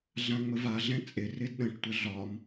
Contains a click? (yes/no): no